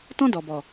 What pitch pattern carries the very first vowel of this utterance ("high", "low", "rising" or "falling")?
high